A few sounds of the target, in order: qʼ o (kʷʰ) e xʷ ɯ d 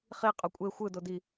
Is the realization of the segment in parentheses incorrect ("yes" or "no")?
yes